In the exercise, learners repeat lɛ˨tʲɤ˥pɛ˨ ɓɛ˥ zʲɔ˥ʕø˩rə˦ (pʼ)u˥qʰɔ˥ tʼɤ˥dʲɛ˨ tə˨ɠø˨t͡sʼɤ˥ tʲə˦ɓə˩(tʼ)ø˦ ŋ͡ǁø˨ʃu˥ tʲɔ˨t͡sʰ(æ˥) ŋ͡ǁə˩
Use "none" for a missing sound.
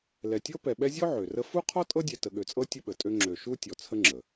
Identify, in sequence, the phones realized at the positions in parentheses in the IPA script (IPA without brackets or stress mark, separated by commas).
f, tʼ, ə˥